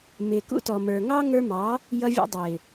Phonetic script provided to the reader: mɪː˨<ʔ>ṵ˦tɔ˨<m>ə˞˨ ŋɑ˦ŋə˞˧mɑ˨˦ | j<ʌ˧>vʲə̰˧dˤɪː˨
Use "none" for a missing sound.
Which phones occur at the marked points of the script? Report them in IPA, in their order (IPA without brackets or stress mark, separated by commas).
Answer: k, m, ʌ˧